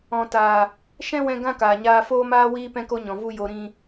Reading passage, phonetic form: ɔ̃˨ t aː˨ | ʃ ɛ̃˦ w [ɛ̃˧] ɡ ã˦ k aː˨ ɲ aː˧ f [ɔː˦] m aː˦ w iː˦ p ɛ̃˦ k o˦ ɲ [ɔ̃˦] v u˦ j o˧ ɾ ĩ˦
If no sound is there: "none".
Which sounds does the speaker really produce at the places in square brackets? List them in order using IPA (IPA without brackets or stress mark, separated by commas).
ɛ̃˧, oː˦, ɔ̃˨